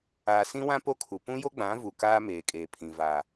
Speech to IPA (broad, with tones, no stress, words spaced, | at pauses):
aː˨sĩ˦wã˦ po˦kʰu˨ pũ˦jo˦ɡ͡bã˨˦ vu˨ kaː˦ meː˨kʼeː˨pʰĩ˨ va˨